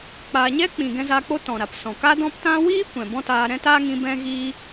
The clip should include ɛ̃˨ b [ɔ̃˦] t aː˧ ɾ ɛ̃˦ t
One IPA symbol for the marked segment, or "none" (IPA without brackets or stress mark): ɔ̃˦